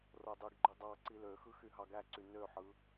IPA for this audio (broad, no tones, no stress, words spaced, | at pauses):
rodˤɯɡɡ͡ǃy dˤɑ ǀiløxɯ xyɦɑɡæǀy nøħɯ